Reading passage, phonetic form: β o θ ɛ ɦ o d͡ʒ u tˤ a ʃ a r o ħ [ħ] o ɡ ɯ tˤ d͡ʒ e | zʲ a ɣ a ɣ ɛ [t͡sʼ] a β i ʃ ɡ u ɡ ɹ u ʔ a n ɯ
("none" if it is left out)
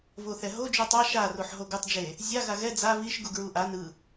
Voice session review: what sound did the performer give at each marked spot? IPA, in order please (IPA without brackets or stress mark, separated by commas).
ɦ, d͡z